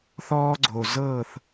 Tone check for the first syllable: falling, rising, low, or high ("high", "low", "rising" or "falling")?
high